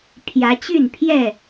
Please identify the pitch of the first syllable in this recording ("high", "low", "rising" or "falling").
rising